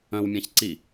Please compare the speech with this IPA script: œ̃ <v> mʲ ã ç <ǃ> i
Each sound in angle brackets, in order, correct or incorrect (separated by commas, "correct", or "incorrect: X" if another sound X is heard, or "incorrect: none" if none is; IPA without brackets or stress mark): incorrect: w, incorrect: ǀ